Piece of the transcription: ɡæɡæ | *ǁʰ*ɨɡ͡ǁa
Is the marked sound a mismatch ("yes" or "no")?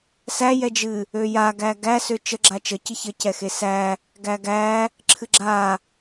no